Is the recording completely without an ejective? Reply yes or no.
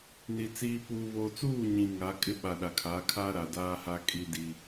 no